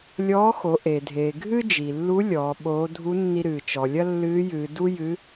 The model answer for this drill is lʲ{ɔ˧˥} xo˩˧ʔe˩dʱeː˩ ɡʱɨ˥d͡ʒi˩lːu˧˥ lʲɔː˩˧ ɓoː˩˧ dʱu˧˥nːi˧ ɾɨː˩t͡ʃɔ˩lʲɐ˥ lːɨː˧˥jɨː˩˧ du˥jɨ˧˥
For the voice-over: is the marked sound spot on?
no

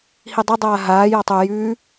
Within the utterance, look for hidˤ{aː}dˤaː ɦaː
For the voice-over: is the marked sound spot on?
no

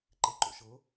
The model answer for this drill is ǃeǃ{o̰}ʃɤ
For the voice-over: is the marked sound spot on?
yes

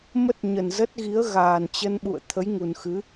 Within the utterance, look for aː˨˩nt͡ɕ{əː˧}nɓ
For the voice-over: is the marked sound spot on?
no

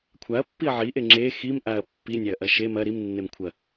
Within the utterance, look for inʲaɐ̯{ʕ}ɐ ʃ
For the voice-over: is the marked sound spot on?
no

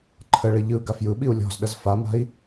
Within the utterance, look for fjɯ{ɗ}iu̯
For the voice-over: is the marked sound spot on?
no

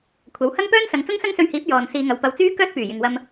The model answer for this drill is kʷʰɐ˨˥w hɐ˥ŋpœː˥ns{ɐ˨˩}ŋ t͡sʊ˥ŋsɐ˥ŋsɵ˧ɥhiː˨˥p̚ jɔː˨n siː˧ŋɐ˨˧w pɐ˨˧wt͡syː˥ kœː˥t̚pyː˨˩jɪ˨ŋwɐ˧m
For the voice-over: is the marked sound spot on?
no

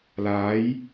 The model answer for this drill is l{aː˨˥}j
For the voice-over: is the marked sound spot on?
yes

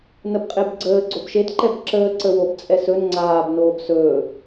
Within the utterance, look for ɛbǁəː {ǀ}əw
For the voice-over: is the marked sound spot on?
yes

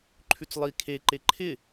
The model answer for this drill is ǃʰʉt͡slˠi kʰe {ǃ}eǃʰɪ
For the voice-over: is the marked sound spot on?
yes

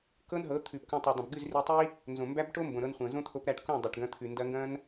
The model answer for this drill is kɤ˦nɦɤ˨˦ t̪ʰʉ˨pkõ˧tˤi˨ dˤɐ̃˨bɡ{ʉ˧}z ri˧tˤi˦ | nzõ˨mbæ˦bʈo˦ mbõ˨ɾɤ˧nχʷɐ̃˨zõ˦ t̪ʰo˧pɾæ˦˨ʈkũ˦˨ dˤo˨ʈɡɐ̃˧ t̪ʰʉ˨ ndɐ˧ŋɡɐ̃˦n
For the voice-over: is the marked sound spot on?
no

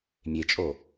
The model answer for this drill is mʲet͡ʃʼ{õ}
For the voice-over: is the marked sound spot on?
no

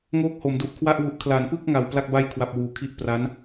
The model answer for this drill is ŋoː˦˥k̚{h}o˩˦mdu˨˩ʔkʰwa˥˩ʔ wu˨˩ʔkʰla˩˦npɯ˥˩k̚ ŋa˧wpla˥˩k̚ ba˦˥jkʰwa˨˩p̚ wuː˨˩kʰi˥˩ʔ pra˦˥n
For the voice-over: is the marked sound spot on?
yes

